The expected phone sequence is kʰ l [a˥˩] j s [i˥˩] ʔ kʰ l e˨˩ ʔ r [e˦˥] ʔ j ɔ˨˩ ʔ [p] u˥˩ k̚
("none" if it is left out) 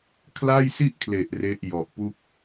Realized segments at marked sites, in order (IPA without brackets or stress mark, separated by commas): a˥˩, i˥˩, e˦˥, p